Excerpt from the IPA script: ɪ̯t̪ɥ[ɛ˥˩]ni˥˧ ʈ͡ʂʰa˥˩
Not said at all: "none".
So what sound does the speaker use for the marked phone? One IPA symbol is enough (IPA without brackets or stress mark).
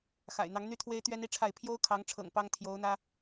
ɛ˥